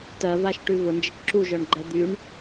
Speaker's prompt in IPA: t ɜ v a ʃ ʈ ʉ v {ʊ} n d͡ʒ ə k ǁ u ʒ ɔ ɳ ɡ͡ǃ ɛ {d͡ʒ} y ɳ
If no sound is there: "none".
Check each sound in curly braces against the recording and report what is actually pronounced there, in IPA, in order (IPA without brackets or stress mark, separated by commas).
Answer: ʊ, d̪